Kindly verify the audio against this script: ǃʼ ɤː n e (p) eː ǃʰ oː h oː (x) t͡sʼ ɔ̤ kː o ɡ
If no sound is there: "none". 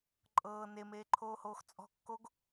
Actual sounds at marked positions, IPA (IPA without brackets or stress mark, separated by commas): m, x